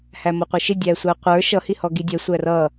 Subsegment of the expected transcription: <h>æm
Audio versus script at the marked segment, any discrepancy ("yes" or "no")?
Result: no